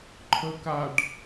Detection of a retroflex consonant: present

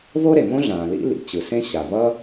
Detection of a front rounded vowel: absent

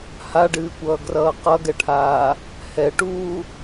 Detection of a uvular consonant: present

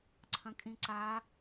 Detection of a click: present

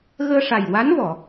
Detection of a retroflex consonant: present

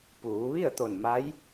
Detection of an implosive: absent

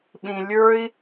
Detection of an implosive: present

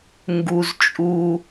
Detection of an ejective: present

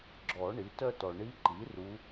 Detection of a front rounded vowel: present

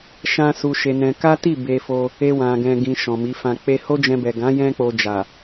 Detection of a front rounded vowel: absent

